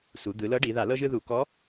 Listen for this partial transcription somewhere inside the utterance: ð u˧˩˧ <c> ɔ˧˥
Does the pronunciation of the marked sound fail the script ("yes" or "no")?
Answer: yes